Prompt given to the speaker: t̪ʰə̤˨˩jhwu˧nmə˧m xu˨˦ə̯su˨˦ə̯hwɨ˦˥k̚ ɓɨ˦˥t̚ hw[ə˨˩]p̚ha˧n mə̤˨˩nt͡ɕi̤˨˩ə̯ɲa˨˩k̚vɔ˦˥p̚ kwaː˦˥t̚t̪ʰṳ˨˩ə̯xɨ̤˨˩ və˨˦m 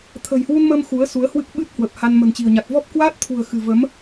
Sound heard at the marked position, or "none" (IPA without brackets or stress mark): ə˨˩